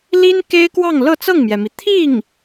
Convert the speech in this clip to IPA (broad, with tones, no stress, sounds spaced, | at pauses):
l i˥ n k e˥ ɪ̯ k w ɑ˥˧ ŋ l ɤ˥˧ t͡s ɤ˥˩ ŋ m j ɛ˩ m i˩ t̪ʰ i˥˩ ŋ